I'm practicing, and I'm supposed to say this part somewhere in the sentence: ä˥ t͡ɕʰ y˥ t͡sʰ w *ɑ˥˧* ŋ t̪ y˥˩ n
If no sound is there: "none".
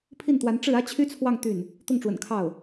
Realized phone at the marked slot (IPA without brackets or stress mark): ɑ˥˧